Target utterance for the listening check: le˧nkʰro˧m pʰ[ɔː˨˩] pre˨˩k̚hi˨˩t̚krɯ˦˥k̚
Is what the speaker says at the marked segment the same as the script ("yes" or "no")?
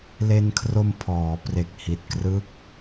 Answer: no